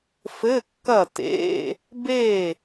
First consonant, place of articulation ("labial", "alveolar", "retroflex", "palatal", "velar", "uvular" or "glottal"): labial